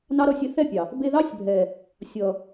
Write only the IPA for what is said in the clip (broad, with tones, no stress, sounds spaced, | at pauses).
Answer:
n ɑ˦ ɾ ʌ˧ sʲ ɛ˧ θ ɛ˦˨ pʲ ɑ˨ | b e˧ ð ɑ˦ sʲ bʱ ɛ˨ | sʲ ʌ˨